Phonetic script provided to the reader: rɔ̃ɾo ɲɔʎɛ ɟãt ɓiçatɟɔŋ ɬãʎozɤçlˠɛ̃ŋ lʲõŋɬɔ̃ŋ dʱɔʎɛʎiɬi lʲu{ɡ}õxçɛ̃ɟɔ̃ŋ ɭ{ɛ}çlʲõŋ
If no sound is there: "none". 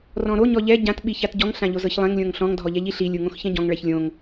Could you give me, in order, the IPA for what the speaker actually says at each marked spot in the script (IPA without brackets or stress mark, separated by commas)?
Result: ŋ, ɛ